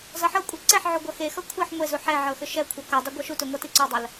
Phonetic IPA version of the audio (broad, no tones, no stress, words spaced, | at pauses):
zʌħɤkʷʼi ǀɛħʕu ɡʷʌxexʌ kʷʰeħ ŋʷe zuħɛʕɤ xʏʃɛkʷʰʌ kɤdˤʏ ɡʷɤʃutʏ ŋʷʌtiǀʏdˤɐl